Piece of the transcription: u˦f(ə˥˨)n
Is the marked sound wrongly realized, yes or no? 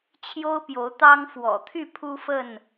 no